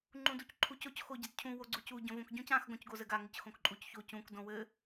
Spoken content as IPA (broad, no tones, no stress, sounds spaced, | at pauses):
ŋ͡ǃ ũ d u c ǃʰ u c o c x o ɟ ɘ d cʰ ũ w o ɡ͡ǀ u c u ɟ õ v õ k ɟ ũ c ã x ɡ õ c ɡ o z ɘ ɡ a ŋ ɘ c x õ k ǃʼ u c ç o c ũ k d õ w ɘ